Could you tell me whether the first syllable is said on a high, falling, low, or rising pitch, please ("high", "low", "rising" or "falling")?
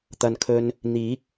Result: low